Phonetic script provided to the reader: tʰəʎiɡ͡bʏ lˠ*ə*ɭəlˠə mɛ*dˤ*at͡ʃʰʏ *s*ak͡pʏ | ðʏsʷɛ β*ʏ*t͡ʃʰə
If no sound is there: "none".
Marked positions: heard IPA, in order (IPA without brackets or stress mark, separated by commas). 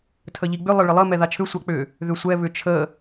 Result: ə, ð, sʷ, ʏ